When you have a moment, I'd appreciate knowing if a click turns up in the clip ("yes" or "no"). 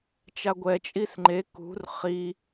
yes